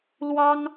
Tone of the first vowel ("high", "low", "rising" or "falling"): high